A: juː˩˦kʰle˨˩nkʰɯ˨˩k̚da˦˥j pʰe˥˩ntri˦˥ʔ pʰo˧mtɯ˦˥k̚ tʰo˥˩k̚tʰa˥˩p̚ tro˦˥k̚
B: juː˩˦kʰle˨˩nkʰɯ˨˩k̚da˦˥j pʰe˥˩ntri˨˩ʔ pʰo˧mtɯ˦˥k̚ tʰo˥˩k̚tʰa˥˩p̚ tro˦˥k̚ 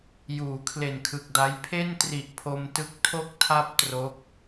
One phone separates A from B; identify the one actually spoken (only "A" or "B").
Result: B